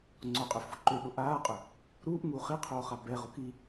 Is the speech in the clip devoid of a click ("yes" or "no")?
no